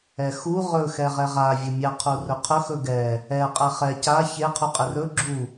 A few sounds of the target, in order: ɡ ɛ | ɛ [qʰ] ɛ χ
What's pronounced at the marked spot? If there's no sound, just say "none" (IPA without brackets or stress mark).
qʼ